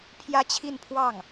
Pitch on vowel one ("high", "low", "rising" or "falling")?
high